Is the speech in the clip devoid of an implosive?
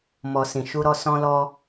yes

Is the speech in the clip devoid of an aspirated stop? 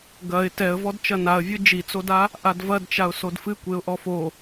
yes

